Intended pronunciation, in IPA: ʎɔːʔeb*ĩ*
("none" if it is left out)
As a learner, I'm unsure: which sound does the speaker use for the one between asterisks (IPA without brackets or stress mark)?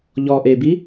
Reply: i